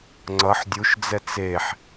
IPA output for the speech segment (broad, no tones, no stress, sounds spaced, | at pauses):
ŋ͡ǀ ʌ ħ dʲ u ʃ d͡z ɛ t͡s e ħ